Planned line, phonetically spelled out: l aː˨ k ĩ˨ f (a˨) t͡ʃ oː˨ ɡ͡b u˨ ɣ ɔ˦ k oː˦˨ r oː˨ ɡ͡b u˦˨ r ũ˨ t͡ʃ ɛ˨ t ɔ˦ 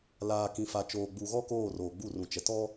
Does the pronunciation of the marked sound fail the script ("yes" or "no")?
no